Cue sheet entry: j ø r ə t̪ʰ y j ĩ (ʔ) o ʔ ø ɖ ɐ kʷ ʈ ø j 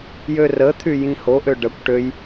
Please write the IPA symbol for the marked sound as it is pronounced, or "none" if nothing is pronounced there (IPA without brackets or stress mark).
h